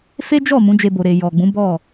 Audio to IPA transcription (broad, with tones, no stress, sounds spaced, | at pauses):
f e˦ d͡ʒ ɔ˦˨ m ũ˨˦ d͡ʒ e˧ b o˨ ɾ e˨ j ɔ˨ ɡ͡b ũ˨˦ b ɔ˦˨